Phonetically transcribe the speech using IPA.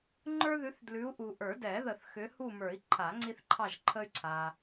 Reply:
ŋ͡ǃə˞˦ðʉ˨˦θ dlʉ˨˦u̯ʔu˨ʔə˞˨˩˦dɛ˨˩˦ ðə˨˩˦θxʏ˨˦hu˦˨mə˞˨˩˦i̯ ǃʰa˨˩˦ŋ͡ǀi˦θǃʰɑ˦˨ʒǃʰə˦y̯ ǀʰa˨

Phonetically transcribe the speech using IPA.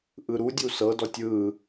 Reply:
ʔɯɾudʲu sɤdɔtʲ ɯ

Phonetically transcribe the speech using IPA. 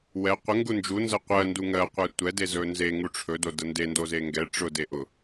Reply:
wɛ qʷə ŋɡund͡ʒu nzəqʷɜ nduŋɜ qʷɛtʷɛ dezɵnze ŋuʈ͡ʂʰɵ dodənde ndozeŋɡɛ ʈ͡ʂʊ deʔʊ

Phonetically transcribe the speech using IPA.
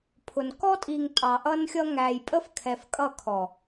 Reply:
pʰʊ˨n kɔ˦tʼi˨ŋ tʼɑ˨ʔʌ˦nxʲʌ˦ ŋæ˨j pʼə˦fkʰɛ˨fkʼʌ˦˨ kʰɔ˨

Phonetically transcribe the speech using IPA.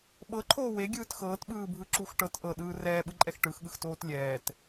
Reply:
ɓɤǃʰoː weɡʲɯːt xɤːtɓɯːbʱɯǁux ʈɤt ʔɤɗɯː rɛːɓɯǃʼɛx ʈɯxɠɯxtoːt lʲɛːt

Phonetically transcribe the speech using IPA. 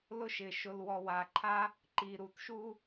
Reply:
lʊ˦ʃɪ˨ ʃʊ˨lwɔ˨wa˨ǃʰa˦ | ǃi˨ɾu˨tʃu˦

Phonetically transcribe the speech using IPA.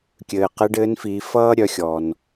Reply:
kʲɘː˩qɘ˧˥ɖɘː˧˥nfi˩˧ fʌː˥ɾʲœ˩˧xʲɔ˩n

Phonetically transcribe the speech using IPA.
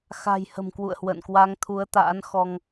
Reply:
xa̤˨˩j hə̤˨˩mkwṵ˧˨ə̯hwə̰ː˧˨n kwa˧ŋt̪ʰu˨˦ə̯t̪a̰ː˧˥n xɔ˧ŋ

